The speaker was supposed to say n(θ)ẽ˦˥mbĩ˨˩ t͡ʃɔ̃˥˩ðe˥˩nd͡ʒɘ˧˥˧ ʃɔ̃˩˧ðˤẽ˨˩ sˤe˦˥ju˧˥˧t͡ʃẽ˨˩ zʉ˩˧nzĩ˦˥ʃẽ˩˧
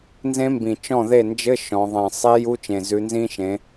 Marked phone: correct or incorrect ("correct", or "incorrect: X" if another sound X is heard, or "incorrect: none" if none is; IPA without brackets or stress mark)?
incorrect: z